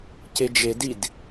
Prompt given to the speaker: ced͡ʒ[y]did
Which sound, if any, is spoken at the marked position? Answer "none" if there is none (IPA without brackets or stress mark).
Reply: e